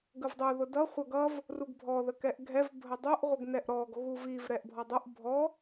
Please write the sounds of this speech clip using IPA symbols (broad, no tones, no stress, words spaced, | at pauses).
ɡəvdˤʊ ðʊdʌ χʷʌɡʌv | ruɡbʱɔ ðəkɛʔɡʱɛv bʱədˤʊʔ ʁʷəɡnɛʔɾɔɡ ɣuviv ɾɛʔbʱɔdˤʊʔ bʱɔ